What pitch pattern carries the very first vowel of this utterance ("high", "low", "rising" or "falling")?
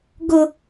high